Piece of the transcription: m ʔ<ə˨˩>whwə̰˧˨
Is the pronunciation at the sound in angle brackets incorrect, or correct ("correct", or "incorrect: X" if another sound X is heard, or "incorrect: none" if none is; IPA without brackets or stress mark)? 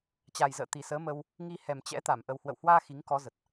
correct